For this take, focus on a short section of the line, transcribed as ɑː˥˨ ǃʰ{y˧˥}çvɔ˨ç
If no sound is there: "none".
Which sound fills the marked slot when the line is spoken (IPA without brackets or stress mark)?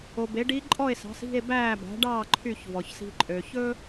y˥˨